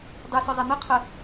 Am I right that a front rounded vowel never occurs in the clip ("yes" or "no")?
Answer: no